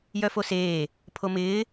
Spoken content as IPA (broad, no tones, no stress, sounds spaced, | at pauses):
j œ f o s eː | pʰ o m ɪː